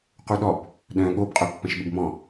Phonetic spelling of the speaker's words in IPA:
q u ɗ ɔ b | ɗ œ̃ ɠ o b qʼ œ pː ɐ̃ ʃ ɓ ɪ b m ɔ̃

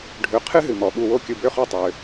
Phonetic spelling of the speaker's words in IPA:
ɖʱ ø˨ qʰ ɨ˥ ɦ ɨ˩ m ɔ˩ ɓ u˨ w o˦ kʲ ɯ˨ b ø˦ χ o˦ tˤ ø˩

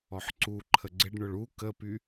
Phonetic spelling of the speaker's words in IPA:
ɔ ħ ǀ u ǃʰ ə ɡ͡ǀ ɪ ɖ ɳ ʊ ɭ u k ə p y

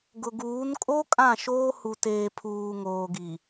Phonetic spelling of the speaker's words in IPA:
ɡ ʊ˨ ɡ uː˨˦ n kʼ o˦ kʼ ã˦˨ ʃ oː˦ h u˨ t eː˨ pʰ uː˨ ŋ oː˨ ɡ i˨

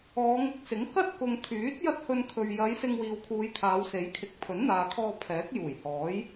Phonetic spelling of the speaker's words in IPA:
ɔː˨˧ ŋ ɪ˧ k̚ s ɪ˨˥ ŋ k ɐ˥ t̚ k ʊ˨ ŋ t̪ʰ yː˨˥ t̚ j ɐ˥ t̚ h ɵ˧ n kʰ ɵ˨ ɥ j ɐ˨˧ j s ɪ˧ ŋ w iː˨ w kʰ uː˨˧ j t̪ʰ aː˨˧ w s e˨˥ j kʰ ɪ˨˥ k̚ pʰ ɵ˨˥ n n̪ aː˨ kʰ ɔː˧ pʰ ɛː˨˥ k̚ j uː˨˩ j h ɔː˨˥ j

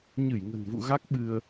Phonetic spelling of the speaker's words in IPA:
ɲ ɨ˧˩ j ŋ ə̤˨˩ n v ṵ˧˨ ɣ a˦˥ k̚ ɓ ɨ˧ ə̯

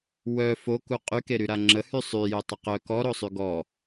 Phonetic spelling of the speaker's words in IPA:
w œ f o k u qʼ y k e ɾ y ɾ a ŋ͡ǁ ə h y sˤ y j ø tˤ ə q œ k ɔ ɾ o sˤ y ɡ ɔ

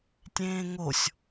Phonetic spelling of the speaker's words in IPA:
tʲ ẽː ŋ o sʲ

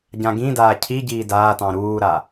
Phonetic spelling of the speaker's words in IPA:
ɟ ã ɡ ĩ d aː cʰ i ɟ iː d aː t ɑ̃ ɾ uː ɾ a

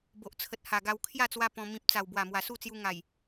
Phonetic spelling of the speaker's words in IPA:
b o˨ ʔ t͡sʰ ə˨ t̚ h a˨˩ ɡ a˧ w kʰ j a˥˧ t͡s w a˧ p ɔ̃˧ m ĩ˨ p̚ t͡s a˨˩ w b w a˨˩ m w a˨˩ s u˥˧ t͡s j u˧ ŋ a˨˩ j

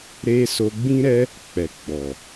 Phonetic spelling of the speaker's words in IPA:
ɾ e˦ s o˧ ɡ͡b ĩ˦ ɾ ɛ˦ | k͡p ɛ˨ ɡ͡b ɔ˨

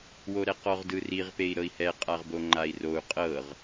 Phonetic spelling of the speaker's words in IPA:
w o ɾ ɛ q ɔ ʁ d ɯ r i ʁ p e i̯ ɾ ɤ i̯ h ɛ qʼ a ʁ b o ŋ͡ǃ a i̯ r o u̯ qʼ ɤ ʁ

